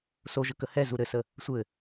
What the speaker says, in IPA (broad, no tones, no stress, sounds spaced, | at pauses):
s o ʒ ə k ə h ɛ z u ɾ ɘ s ə | sʷ ɘ